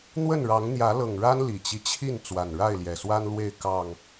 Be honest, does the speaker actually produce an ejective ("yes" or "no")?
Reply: no